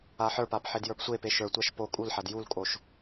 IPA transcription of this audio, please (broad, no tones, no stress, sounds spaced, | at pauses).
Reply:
a ħ ə˞ p a p ħ e d j ə˞ p sʷ e p e ʃ ə˞ tʷ a ʃ p o kʼ u l ħ a d j u l kʼ o ʃ